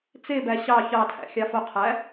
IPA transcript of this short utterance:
t͡s e b æ ɕ ɑ ç ɑ tʰ æ̰ xʲ ɑ f o qʰ æ

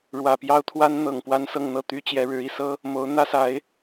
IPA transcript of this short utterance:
ɻ w ä˨˩ p j ɑ˥ ʊ̯ t̪ʰ w a˥ n n̪ ɤ˨˩ ŋ p w a˥ n s ɤ˥˧ ŋ n̪ ɤ˥˩ t̪ y˥ t͡ɕ j ɛ˧˥ ɻ ɻ̩˧˥ i˨˩ s ɤ˥ | m o˧˥ ʊ̯ n̪ ä˥ s a˧˥ ɪ̯

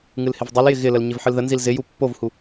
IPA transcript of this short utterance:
ŋ ɨ l h ɪ v dˤ ɨ l j ɪ ɣ ɪ l ə l ɲ ɪ v ħ ɨ l ð ə n z i l z ɪ j u pː o v h u

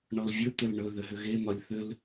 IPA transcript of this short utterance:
ɳ ɔ l vʲ ɵ t̪ ʏ l ɳ ɵ ð ʏ ɦ ʏ ɣ e n̪ ɒ lʲ θ ʏ l

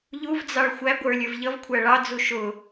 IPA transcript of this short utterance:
ʎ u v d͡z ɑ ɭ xʷ æ ɡʷ ə˞ lʲ ə˞ v ʎ ʌ v kʷʰ æ ɭ ɑ d͡z u ʃ ʊ

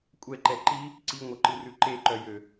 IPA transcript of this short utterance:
kʷʼ ɛ ǃ ɛ ǃ i | ǀ i ŋʷ œ ǃ ɨ r ʉ ǃ e ǃ œ j ø

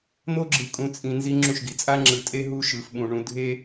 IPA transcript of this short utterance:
n̪ o˦ ɡ͡ǁ ɯ˨ kʼ ũ˨ t͡sʼ ĩ˨ n z i˦ ŋ͡ǁ ũ˦˨ ʃ ɡ i˨ t͡sʼ a˦ ŋ͡ǁ ɯ˨˦ tʼ e˦ ɦ u˦ ʃ ɯ˨ f ɓ ũ˨ ɳ ũ˨ dʱ e˦

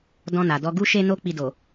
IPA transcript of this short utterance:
d ɔ̃˧ n a˨ d ɔ˧ ɡ u˧ ʃ e˧ n o˦ k͡p i˧ d o˨

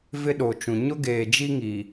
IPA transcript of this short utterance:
v ɪ˦ ɗ o˨ t͡ʃ ũ˨ ɲ ʊ˦ ɡ eː˨ d͡ʒ i˦ ŋ i˨

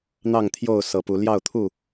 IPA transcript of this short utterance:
n̪ ɑ˥˨ ŋ t̪ʰ j o˥˨ ʊ̯ s ɤ˨˦ p u˨˦ l j ɑ˥˨ ʊ̯ t̪ʰ u˥˨

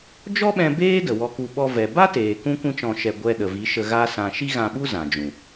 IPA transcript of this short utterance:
d͡ʒ ɔ˦ ɓ ɛ̃˧ b eː˦ d ə˨ w ɔ˧ k u˧ ɓ ɔ˧ v ɛ˨ b a˦ t eː˨ k ũ˦ kʷ ĩ˦ t͡ʃ ɔ̃˧ ʃ ɛ˧ ɡʷ ɛ˧ ɗ ə˨ v i˨˦ ʃ ə˧ ɣ a˦ s ã˧ ʃ i˦ ɣ ã˧ ɓ u˦ z ã˨ d͡ʒ ũ˨

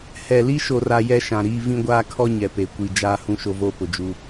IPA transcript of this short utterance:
h ɛ˨ l i˦ ʃ o˨ r a˨ j ɛ˦ ʃ ã˨ ɾ iː˦ v ĩ˦ ɡʷ aː˦ kʰ ɔ˦ ɲ ɛ˨ p e˨ kʷ i˨ d͡ʒ aː˦ h ũ˦ ʃ o˦ v oː˦ p ʊ˨ d͡ʒ u˦

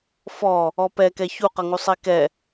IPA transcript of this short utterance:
f ɔ | ɔ p ɛ k ɛ ç u q ʌ ŋ u sˤ i k ɛ

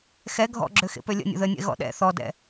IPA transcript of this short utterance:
x ɛ ɡʱ ɔ̰ ɡ͡ǁ ø x ḛ p ø lʲ ə̰ nʲ ə̰ ð ə nʲ ɛ̰ ɣ ɔ̰ ɗ ɛ̰ θ ɔ d ɛ̰

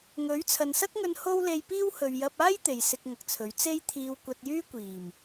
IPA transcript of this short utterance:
ŋ ɵ˨˥ ɥ t͡sʰ ɐ˨ n s ɐ˥ k̚ ŋ ɵ˧ n h o˥ w l e˧ j p iː˥ w h ɵ˨ ɥ j ɐ˧ p̚ aː˥ j t̪ e˨ j s ɪ˧ k̚ ŋ ɐ˨ k̚ t͡sʰ ɵ˨˥ ɥ t͡s e˥ j t̪ʰ iː˧ w kʷ ɐ˧ t̚ j yː˥ kʷ iː˨˩ m

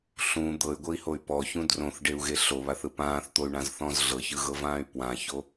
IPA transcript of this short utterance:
ɬ ũ d̪ ɤ y̯ ɡʷ ɤ i̯ h o y̯ p ɔ ç ũ d r õ θ ɖ e u̯ ɣ e ɬ o β a θ ɯ p ãː θ t̪ o y̯ ɳ ã z θ ɔ̃ z ɮ ɤ ç ɯ ɣ ɤ v ãː y̯ p w ã ç o

